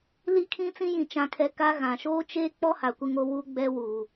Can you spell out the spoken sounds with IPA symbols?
l i˦ kʰ ĩ˦ t͡s ĩ˦ j ĩ˨ t͡ʃ ã˨ kʰ ɛ˨ k a˦ ɣ ã˨ ʃ oː˦ t͡ʃ eː˦ k͡p ɔ˦ h a˨ kʷ ɪ˦ ŋ o˦ w u˦ ɡ͡b ɛ˦ w uː˨

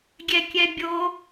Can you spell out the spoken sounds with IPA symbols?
ɡʲ ɛ kʲ ɛ bʲ o

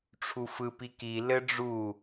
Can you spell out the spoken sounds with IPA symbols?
ʈ͡ʂʰ u f ɯ p i k i l ɘ ɖ͡ʐ u

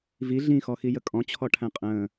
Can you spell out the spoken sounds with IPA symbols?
v i ɮ ĩ x ɔ x i j ə kʼ ɔ̃ t͡ɕʰ ɔ ʈʰ æ̃ qʼ ə̃ː

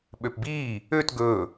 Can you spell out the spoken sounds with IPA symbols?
ɓ ø p b iː | ø t ɡ ɵː

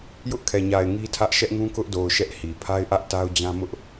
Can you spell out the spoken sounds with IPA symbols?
j ʊ˦ ʔ kʰ ɛ˨ ɲ a˨ ɪ̯ ŋ i˦ tʰ ä˦ ʔ ʃ ɛ˦ ʔ ŋ ũ˦ k ʊ˦ ʔ d o˨ ʊ̯ ʃ ɛ˦ ʔ h i˨ pʰ a˦ ɪ̯ ʔ ä˦ ʔ t a˦ ʊ̯ d͡ʑ ã˦ m ʊ˦ ʔ

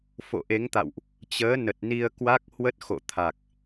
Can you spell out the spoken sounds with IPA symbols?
f o̰˧˨ ʔ e˨˦ ŋ t̪ a̰˧˨ w ʔ | t͡ɕ əː˨˦ n ə˨˩ t̚ n i˧ ə̯ k w a˦˥ k̚ h w ə˦˥ t̚ x o̰˧˨ t̪ʰ a˨˩ k̚

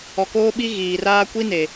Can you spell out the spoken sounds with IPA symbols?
ɔ˨ k oː˦ ɓ i˦ ɣ iː˨ r aː˦ kʷ i˦ n e˨

